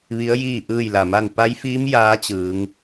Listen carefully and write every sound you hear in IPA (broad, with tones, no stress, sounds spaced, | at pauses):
ʋ i˧˥ ə̯ j iː˥˨ ʔ ɯː˥˨ j l a˧˩ m a˥˨ n p a˧˥ j f iː˧˥ m j aː˧˥ t͡ɕ ɯː˩˧ ŋ